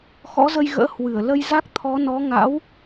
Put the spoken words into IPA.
x ɔ̰˧˥ z ə˧ j ɣ ə̰ː˧˥ h w ɨ˧˩ ə̯ l ə˧ j z a˦˥ k̚ t̪ʰ ɔ˨˦ n ɔ˨˦ ŋ a̰˧˥ w

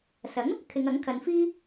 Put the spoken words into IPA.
s ɐ˨˥ ŋ | kʰ ɪ˨˧ ŋ ɐ˨˥ ŋ kʰ ɐ˨˧ n f iː˥

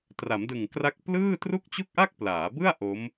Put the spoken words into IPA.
t r a˩˦ m d ɯ˨˩ ŋ k r a˦˥ k̚ p l ɯː˥˩ t r u˥˩ k̚ t͡ɕ u˥˩ k̚ ʔ a˥˩ k̚ p l aː˩˦ b ɯ˥˩ a̯ ʔ o˦˥ m

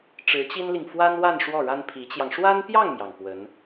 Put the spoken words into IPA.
ʈ͡ʂ ɻ̩˧˥ t͡ɕ i˥ n l i˨ ŋ f w a˥ n w a˥˧ n ʂ w ɔ˥˩ ɻ a˥ n pʰ i˧˥ t͡ɕ j ɑ˧ ŋ ʂ w a˥ n p j ɑ˥˩ ŋ m j ɑ˩ ŋ p w ə˧˥ n

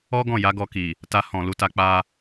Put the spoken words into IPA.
ɔ˦ ɡ ɔ̃˦˨ j a˨˦ ɡ ɔ˧ k i˨ | t a˧ h ɔ̃˨ l u˨˦ t a˧ k͡p a˧

